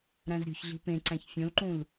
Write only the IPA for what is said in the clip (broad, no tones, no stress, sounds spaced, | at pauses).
ɾ æ̃ z ɾʲ o̤ ç ɮ i̤ p ẽ ǀ æ̃ ç fʲ õ l ǃ ũ l